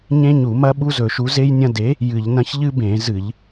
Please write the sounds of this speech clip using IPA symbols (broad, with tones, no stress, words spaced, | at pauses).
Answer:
ɲẽ˦ɲu˧˩˧mɐ˦ ɓu˦zɵ˧˩˧ʃu˨˥ ze˦jnʲɐ̃˦ de˨˥ | jɨ˧˩˧ʎnɐ̃˦ç ʎɨ˦bẽ˧˩˧ zɨ˧˩˧ʎ